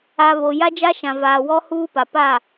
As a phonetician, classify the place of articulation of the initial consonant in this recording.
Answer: labial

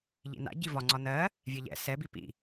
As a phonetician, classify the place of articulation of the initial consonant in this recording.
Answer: palatal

